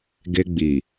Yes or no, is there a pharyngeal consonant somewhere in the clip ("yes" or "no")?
no